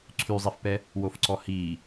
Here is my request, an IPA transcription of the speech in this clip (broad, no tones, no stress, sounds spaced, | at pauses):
ǀʰ y zˤ i f p ɛ | w o f ǀ ɔ h iː